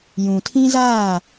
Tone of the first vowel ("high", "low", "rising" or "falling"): low